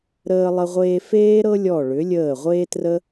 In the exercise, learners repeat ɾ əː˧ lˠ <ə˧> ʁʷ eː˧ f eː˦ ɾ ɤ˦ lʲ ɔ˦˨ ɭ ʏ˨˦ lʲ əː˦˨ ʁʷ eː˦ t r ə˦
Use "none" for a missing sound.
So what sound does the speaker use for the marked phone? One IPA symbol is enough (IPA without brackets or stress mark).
ə˧